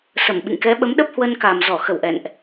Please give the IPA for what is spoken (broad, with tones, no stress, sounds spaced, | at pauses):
s ə˧˩ m ɓ ḭ˧˨ ŋ k ɛ˨˦ ɓ ə˨˦ m ɗ ə˦˥ p̚ h w ə˧ n k a˨˩ m z ɔ˧˩ x ə˧˩ w ʔ ɛ̰˧˨ n ʔ